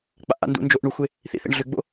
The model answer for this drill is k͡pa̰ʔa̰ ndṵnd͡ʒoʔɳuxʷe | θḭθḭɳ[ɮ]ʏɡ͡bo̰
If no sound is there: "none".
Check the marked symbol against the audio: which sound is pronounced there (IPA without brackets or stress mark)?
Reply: ɮ